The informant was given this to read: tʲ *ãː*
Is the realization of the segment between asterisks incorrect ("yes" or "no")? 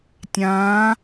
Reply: no